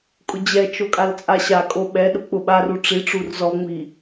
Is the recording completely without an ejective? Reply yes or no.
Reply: no